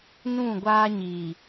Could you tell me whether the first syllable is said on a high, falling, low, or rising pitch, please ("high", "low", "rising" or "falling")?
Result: falling